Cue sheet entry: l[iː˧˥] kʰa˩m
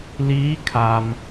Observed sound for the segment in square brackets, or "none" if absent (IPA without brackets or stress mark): iː˧˥